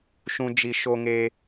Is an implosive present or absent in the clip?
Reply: absent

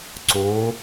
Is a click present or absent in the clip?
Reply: present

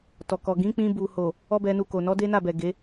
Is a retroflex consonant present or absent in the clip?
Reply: absent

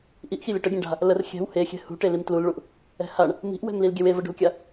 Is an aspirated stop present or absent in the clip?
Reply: absent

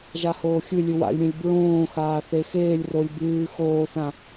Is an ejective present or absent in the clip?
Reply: absent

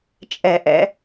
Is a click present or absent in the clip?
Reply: absent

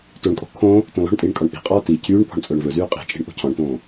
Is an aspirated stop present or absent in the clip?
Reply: present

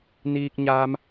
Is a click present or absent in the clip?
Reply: absent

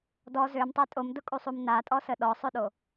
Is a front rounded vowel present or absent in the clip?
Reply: present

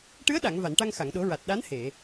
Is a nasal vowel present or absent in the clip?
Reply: absent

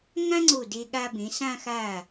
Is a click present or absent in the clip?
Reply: present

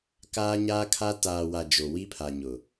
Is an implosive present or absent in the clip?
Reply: absent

